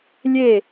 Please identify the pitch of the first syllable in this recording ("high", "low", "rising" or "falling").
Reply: falling